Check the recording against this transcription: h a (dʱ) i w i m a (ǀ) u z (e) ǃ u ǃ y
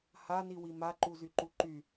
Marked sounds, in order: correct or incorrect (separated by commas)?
incorrect, incorrect, incorrect